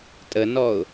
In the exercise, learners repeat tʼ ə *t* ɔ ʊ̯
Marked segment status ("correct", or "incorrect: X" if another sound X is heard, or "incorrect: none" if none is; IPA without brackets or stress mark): incorrect: n